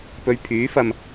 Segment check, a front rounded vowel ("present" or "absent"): present